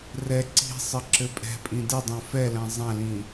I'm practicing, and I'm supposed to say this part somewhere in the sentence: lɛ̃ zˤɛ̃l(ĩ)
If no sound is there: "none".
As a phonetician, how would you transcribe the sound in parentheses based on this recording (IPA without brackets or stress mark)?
ĩ